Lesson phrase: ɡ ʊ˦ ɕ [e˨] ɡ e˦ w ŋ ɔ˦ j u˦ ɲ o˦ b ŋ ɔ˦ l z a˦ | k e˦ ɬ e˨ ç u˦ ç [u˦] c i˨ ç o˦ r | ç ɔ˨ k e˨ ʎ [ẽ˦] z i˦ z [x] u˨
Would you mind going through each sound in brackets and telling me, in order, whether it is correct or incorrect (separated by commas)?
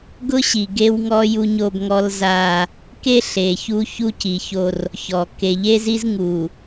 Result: incorrect, correct, incorrect, incorrect